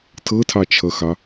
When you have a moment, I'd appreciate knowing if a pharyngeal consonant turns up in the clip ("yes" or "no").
no